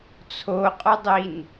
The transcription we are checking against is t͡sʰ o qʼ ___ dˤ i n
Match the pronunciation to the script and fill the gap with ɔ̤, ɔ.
ɔ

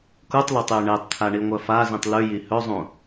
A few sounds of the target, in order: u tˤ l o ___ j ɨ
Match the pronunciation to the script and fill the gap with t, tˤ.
tˤ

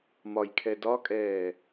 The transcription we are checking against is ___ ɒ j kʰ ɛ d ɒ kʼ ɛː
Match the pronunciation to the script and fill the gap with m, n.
m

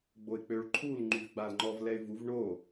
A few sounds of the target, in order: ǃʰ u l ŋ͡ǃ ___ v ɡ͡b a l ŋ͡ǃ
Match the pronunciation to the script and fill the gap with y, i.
y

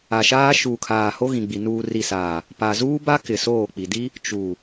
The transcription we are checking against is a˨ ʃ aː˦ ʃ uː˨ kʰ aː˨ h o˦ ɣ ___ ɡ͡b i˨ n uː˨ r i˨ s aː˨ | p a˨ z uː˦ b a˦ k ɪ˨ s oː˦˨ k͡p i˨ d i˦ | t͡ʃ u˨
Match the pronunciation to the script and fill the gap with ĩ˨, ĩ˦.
ĩ˨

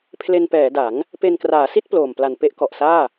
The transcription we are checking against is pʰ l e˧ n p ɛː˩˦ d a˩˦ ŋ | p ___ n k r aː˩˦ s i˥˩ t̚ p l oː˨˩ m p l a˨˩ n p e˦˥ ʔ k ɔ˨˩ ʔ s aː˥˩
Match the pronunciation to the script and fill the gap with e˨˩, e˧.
e˧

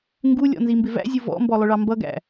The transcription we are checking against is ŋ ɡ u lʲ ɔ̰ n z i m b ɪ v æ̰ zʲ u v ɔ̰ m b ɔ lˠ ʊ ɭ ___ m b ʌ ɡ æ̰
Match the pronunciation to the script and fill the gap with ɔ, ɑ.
ɑ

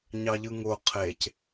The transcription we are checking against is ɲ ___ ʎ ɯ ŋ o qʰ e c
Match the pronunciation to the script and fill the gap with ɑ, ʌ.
ɑ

